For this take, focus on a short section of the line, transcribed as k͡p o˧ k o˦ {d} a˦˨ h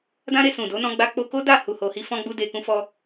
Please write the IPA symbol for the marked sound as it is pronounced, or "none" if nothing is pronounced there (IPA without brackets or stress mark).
d